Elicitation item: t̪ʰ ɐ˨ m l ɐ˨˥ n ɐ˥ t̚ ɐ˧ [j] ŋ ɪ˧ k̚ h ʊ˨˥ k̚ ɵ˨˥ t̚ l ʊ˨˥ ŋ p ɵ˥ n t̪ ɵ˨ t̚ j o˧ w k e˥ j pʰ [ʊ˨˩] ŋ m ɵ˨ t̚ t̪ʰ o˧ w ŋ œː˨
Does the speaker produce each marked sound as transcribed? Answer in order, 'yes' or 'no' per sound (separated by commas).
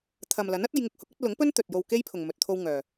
yes, no